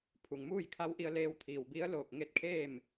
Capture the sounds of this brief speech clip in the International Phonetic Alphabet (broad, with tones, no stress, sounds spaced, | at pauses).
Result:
pʰ u˩ ŋ m uː˥˨ j kʰ a˧˥ w ʔ i˧ ə̯ l eː˧ w t̪ʰ iː˩ w b i˧˥ ə̯ l oː˧˩ k̚ ŋ e˥˨ t̚ kʰ eː˥˨ m